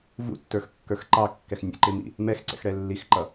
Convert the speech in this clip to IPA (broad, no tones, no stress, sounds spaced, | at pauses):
v ṵ tː ə˞ x kː ə˞ x ǃ ɑ kː ɛ x nʲ ə̰ ǃ ɪ m ḭ | m ɛ x ǀ ɛ̰ x ɽ ɛ lː i x ǃ ʌ